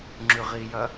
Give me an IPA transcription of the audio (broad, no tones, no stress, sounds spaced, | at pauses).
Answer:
ŋ͡ǁ ʉ ʁ i j ɐ